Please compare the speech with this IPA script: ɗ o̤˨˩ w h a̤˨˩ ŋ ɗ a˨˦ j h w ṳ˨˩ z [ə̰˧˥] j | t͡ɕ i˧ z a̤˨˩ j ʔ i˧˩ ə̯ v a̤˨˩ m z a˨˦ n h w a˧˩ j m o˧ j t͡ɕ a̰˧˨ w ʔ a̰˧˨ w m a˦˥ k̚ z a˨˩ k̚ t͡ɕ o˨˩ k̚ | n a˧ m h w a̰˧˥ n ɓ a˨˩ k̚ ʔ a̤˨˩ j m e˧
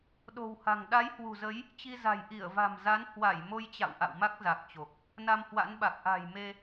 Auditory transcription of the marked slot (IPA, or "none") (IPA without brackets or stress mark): ə˨˦